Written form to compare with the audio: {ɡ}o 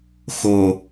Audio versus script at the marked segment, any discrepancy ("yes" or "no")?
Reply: yes